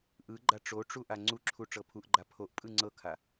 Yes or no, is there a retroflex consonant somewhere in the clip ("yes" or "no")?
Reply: yes